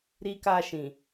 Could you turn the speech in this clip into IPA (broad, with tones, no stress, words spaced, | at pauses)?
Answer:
ɾi˧ka˧ʃĩ˨